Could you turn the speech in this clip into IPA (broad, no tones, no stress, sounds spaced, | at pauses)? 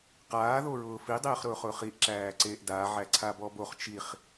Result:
q aː ð o ɹ ʊː f i dˤ eː χ ɾ ʊː χ ʊː χ i ʔ ǁ æː ǀ eː ʔ d a ʕ æ ǀʰ a b ɔ b o χ t͡ʃ i χ